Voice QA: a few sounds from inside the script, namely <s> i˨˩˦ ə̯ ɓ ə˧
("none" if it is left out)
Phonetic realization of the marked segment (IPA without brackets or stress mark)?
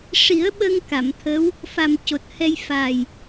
ʂ